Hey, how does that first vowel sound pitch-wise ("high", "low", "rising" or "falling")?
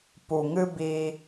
low